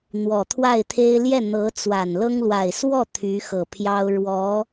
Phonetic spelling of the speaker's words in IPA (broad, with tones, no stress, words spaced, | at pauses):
n̪wɔ˨˩t̪ʰwa˥˩ɪ̯t̪ʰe˥ɪ̯ ljɛ˥˩n̪ɤ˧˥t͡swa˨˩nlɤ˥ŋ lwa˨˩ɪ̯swɔ˥˩ t̪ʰy˧˥xɤ˨˩pʰjɑ˥ʊ̯ ɻwɔ˧˥